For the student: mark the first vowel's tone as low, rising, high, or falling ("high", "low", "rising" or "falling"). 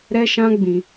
high